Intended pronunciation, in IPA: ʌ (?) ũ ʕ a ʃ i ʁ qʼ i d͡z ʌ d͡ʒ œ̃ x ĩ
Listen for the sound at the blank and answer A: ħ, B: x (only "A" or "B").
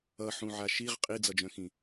A